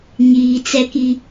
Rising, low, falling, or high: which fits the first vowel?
low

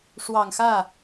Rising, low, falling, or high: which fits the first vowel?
low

